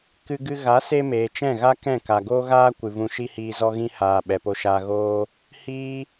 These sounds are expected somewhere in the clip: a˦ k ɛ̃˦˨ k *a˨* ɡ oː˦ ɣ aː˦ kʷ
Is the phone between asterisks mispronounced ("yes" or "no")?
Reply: no